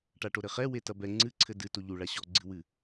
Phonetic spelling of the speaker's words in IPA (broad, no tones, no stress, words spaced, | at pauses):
ʈaʈoɾɘχɛ wetɐbɛ ŋ͡ǀɨǀʰɘ dɨto ʎu ɭaɕɔɡ͡ǀɨwɨ